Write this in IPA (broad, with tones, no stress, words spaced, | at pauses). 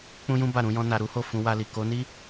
k͡pũ˦jũ˦ba˦˨ ɾũ˨˦jɔ̃˦ na˧ɾu˦ho˦˨ fũ˧wa˧li˨ ko˨˦ni˦